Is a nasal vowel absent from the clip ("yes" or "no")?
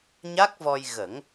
yes